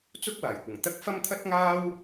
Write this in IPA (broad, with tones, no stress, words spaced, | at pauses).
t͡sʊ˥k̚waː˨˩jkʷɐ˨˩ŋ t̪ɐ˥k̚fɐ˥m t̪ʰɐ˥t̚ŋaː˥w